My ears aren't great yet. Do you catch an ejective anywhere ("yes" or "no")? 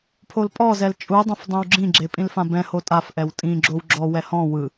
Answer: yes